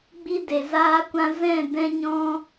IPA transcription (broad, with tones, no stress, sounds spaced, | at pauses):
ɡ͡b i˦ d e˨ z aː˦ kʷ ã˦ z ɛ̃˦˨ d ɛ̃˧ ɲ ɔ̃˧